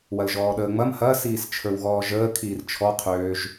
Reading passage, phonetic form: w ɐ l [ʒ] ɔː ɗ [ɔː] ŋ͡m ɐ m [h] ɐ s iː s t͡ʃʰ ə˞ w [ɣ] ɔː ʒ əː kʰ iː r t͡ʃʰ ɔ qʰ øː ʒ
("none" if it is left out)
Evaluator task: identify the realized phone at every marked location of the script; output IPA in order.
ʒ, əː, h, ɣ

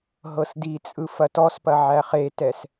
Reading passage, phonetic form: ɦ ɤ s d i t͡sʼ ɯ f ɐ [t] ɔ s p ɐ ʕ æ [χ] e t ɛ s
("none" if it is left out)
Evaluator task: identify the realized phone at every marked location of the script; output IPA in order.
t, χ

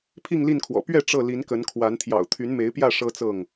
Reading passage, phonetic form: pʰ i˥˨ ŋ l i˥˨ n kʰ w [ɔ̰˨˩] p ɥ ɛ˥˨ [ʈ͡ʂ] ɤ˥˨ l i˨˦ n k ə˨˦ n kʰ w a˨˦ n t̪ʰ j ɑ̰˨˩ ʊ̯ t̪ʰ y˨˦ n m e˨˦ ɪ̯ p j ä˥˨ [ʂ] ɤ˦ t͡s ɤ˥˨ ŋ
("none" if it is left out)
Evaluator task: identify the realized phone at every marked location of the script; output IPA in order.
ɔ̰˨˩, ʈ͡ʂ, ʂ

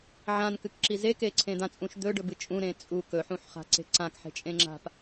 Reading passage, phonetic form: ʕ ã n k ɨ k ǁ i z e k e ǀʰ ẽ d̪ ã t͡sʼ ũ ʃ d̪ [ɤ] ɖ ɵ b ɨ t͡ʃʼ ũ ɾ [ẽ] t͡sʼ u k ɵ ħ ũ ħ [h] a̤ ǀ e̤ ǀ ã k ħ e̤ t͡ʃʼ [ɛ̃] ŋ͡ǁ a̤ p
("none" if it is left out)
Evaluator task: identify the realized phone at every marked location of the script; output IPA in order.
ɵ, ẽ, χ, ẽ

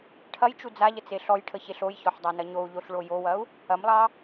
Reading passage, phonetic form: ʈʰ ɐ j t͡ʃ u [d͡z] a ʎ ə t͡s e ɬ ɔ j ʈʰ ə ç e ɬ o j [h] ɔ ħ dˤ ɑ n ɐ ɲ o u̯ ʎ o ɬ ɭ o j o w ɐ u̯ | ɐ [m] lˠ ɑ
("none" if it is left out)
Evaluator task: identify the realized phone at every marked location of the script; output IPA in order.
d͡z, ç, m

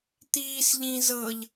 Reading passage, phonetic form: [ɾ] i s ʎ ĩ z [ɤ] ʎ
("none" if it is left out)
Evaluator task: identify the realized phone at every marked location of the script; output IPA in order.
t̪, ɤ

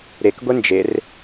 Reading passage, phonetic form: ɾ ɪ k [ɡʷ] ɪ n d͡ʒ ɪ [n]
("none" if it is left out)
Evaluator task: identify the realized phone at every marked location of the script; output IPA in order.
ɡʷ, r

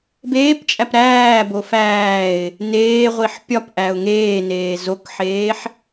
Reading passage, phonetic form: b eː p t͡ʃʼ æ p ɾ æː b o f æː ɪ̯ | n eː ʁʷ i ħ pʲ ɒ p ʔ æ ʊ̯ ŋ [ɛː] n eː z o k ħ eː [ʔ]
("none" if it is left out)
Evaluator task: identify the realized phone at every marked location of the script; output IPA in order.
eː, ħ

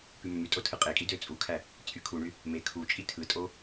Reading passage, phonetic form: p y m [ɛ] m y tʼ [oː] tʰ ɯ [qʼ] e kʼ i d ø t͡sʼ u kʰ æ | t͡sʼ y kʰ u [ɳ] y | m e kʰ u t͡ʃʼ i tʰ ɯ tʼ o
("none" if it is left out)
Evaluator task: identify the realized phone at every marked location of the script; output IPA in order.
ø, o, qʼ, ɳ

